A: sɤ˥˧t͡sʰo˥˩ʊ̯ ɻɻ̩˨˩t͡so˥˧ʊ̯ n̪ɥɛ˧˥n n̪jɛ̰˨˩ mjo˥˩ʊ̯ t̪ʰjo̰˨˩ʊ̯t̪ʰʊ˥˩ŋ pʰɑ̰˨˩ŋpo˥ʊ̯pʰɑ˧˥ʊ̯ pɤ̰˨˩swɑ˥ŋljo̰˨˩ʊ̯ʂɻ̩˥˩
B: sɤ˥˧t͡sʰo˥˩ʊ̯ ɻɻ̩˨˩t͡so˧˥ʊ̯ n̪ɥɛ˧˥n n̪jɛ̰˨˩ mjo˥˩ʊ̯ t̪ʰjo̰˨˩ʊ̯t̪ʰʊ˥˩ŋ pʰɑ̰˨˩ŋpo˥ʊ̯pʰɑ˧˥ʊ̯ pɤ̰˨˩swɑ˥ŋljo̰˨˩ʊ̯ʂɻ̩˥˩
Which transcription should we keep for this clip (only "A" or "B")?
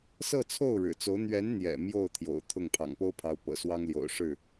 B